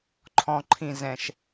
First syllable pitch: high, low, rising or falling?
low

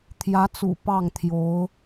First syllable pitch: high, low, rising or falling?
rising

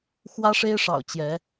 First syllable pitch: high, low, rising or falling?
high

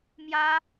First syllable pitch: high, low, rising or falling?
high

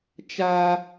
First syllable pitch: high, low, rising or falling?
high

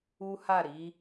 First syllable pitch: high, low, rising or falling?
high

